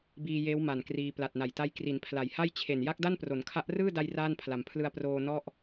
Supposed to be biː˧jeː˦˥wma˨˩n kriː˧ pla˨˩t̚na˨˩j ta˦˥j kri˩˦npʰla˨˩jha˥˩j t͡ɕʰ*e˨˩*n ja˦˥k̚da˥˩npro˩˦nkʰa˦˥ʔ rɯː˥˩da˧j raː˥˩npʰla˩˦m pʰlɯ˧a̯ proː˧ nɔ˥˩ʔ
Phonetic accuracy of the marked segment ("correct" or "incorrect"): correct